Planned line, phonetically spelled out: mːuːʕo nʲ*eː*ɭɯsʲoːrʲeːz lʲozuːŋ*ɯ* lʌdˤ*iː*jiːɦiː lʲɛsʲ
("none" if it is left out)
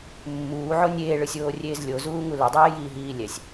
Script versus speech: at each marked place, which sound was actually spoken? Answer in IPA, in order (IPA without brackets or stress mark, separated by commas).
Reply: eː, u, eː